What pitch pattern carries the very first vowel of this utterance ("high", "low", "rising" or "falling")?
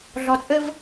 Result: low